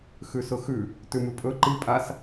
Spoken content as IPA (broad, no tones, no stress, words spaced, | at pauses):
xʉsʊxʉ | tʉmʉpʼɵ ǃi pʼas